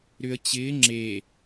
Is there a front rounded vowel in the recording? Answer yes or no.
yes